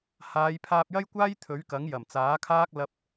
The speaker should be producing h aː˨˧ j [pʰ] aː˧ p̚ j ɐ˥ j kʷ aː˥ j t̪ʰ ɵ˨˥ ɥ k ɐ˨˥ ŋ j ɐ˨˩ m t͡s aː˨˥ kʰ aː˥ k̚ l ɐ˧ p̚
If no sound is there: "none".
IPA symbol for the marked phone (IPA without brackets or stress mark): pʰ